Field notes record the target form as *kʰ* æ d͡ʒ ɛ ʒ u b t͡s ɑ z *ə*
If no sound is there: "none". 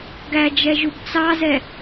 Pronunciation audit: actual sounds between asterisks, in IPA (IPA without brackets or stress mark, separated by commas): ɡ, ɛ